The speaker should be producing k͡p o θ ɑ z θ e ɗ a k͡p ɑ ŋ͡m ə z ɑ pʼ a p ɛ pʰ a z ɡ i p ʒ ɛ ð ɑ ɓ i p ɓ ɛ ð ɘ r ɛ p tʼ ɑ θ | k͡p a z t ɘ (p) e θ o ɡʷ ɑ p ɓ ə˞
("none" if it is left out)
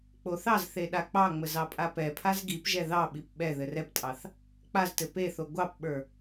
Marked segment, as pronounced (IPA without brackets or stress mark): p